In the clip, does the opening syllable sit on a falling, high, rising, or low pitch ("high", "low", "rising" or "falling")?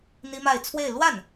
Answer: high